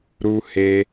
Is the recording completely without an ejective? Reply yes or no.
yes